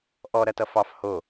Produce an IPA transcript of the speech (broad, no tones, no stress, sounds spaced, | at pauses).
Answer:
ʔ ɔ ɾ ɐ t ʌ f ɑ f h o